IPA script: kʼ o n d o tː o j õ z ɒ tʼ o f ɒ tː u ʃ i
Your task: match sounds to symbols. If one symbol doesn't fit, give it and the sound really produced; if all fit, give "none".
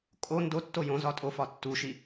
none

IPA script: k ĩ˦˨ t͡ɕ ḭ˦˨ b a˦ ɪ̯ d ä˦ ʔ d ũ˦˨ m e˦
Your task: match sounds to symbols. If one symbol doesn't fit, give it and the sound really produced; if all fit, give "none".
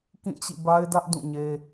m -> ɲ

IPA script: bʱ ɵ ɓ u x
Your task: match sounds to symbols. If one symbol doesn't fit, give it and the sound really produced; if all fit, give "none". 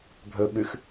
u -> ʉ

